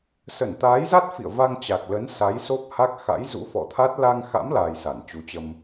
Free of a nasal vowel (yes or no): yes